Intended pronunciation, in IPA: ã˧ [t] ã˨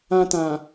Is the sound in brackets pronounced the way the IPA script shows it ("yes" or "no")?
yes